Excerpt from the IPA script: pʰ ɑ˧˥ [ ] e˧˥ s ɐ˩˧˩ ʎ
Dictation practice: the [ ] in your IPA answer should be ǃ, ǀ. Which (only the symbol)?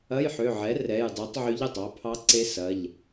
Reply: ǀ